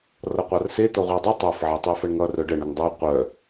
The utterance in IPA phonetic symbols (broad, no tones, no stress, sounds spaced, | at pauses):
r ʌ qʷ a r s e t̪ ʌ ʁʷ e dˤ œ tˤ ə˞ f ʕ e tˤ e f ə ɳ ŋ ʌ r œ ɖ ə ɳ ə ŋ dˤ ə˞ qʷ œ